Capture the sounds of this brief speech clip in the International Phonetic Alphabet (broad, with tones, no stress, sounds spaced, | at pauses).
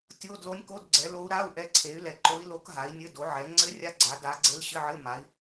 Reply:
tʲ o˧˥˧ d l o˧˥ nʲ k o˧˥˧ d ɡ͡ǀ ɛ˩˥ l o˧˥ u̯ ɾ a˧˥˧ u̯ ʔ ɛ˧˥ ǀʰ e˩˥ y̯ l ɛ˩˥ ǃ o˧˥ i̯ l o˧˥ k ɦ a˩˥ i̯ nʲ ɘ˧˥˧ d o˩˥ ʕ ɛ˩˥ ŋ͡ǀ ɘ˧˥ rʲ a˧˥ ɡ͡ǀ a˩˥ d a˧˥ ɡ͡ǀ e˧˥ l ɕ ɘ˧˥˧ ʕ ɘ˧˥˧ m a˩˥ i̯